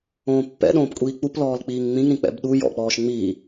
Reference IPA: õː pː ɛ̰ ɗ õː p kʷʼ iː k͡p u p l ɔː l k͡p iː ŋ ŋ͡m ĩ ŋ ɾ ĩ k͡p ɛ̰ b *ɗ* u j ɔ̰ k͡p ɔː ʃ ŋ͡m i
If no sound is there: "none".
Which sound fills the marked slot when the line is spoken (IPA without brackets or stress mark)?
ɗ